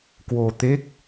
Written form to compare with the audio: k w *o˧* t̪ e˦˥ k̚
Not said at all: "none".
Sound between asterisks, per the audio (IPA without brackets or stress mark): o˧